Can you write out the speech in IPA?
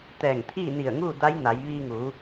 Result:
t̪ ɛː˧˩ ŋ t̪ʰ iː˥˨ n i˧˩ ə̯ ŋ uː˥˨ d a˧˥ j n a˩˧ j ʋ iː˧ ŋ uː˩˧

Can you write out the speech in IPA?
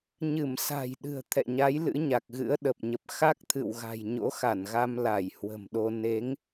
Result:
ɲ ɨ˧˩ m s a̤˨˩ j ɗ ɨ̤˨˩ ə̯ t̪ʰ ɛ̰˧˨ ɲ a˨˦ j l ɨ̰˧˥ ɲ a˨˩ k̚ ɣ ɨ̰˧˥ ə̯ ɗ ə˨˩ p̚ ɲ ə˨˩ p̚ x a˦˥ k̚ t̪ʰ ɨ̰˧˨ w ɣ a̤˨˩ j ɲ o̰˧˥ x a˧˩ n ɣ a˧ m l a˧˩ j h w ə̤˨˩ m ɗ o˧ n e˨˦ ŋ

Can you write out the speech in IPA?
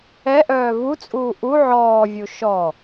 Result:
ɛ ʔ œː v u t͡sʼ uː ʔ u ʕ ɔː vʲ u ʃ ɔ

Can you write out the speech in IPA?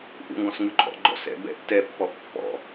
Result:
ʔ ṵ ŋ ɡ ɔ̃ s ŋ ʉ ǃʼ ɔ̰ ɡ͡ǃ ɔ̰ s ɛ̰ b ɛ̰ tː ɛ pː ɔ ʔ pː ɔ̰

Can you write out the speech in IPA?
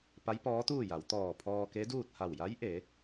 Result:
p a˧˥ j p ɔː˧˥ t̪ uː˥˨ j a˩˧ w t̪ ɔː˧˩ pʰ ɔː˧ k e˧˥ d uː˥˨ t̚ h a˧˩ w j a˧˥ j ʔ e˩˧

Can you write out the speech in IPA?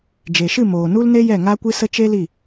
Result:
d͡ʒ e˨ ʃ ɨ˦˨ m oː˨ n u˦ l n e˦ j ɛ˦˨ ŋ a˦ kʷ ɨ˦ s ə˦ t͡ʃ e˦ l i˦˨

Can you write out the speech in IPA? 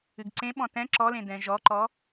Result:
ɨ ɡ ǀ ẽ ɓ ɔ̃ t ɛ̃ ǁ ɔ l ẽ d ɛ̃ ʒ ɔ ǃ ɔ

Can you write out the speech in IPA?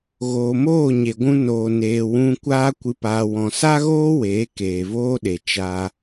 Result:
ɣ oː˨ m oː˦˨ ɲ e˨ ɡʷ ũ˧ n oː˨ n eː˨ w ũ˧ kʷ aː˦ kʷ ɨ˧ p aː˧ w ɔ̃˧ s a˦ ɣ oː˦ w eː˨˦ k eː˨ v oː˦ ɗ e˨ t͡ʃ a˧

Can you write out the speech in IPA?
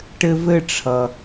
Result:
ʈ ɘ˦ v ɘ˥ ʈ͡ʂʰ ʌ˩

